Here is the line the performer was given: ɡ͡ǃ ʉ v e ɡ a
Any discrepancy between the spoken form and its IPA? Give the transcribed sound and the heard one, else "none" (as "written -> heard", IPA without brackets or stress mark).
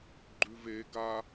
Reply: none